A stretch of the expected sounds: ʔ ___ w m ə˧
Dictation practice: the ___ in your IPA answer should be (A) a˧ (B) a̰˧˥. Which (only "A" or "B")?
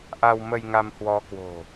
A